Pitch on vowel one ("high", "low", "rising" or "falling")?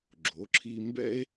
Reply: rising